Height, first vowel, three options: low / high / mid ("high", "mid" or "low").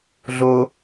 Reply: mid